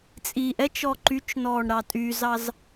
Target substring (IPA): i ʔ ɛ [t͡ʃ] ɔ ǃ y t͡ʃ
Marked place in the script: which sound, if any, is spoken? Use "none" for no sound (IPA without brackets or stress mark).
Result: t͡ʃ